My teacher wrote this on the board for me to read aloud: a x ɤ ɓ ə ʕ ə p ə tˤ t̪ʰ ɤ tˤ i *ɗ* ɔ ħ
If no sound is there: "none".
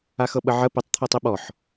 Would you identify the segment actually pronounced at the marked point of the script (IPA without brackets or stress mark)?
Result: ɓ